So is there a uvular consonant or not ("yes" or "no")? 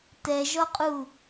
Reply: yes